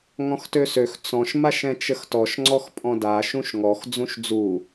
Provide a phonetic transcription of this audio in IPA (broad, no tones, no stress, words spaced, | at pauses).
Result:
ŋɔ̃xtøsøx t͡sɔ̃ʃ maʃɛ̃t͡ʃəxtɔʃ ŋ͡ǀɔxpʼɔ̃da ʃũʃŋɔx d͡zũʃd͡zu